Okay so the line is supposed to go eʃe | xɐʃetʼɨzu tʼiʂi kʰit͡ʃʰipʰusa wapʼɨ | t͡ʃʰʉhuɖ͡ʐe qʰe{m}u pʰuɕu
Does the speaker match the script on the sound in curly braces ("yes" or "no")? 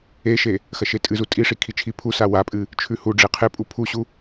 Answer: no